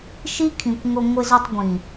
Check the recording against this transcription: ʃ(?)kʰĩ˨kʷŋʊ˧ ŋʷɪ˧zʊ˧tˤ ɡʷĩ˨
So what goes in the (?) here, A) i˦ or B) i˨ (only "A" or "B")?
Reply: A